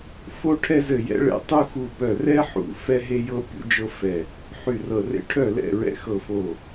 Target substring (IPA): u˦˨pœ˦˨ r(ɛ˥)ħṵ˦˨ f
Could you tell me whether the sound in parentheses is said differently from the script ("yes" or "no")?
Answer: no